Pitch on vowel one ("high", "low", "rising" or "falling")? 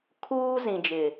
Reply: high